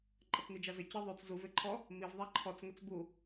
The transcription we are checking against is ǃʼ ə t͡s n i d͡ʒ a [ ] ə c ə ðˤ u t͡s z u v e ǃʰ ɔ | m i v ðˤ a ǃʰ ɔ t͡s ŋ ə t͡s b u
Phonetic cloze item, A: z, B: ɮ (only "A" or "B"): A